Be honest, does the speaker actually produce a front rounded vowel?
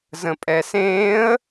no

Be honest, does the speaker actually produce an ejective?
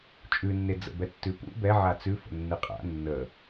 yes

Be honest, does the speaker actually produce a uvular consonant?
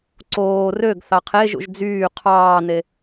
yes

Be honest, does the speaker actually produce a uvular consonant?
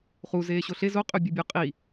yes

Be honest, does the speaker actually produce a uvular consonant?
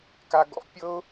no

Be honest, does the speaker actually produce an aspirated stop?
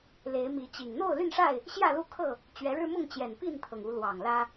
yes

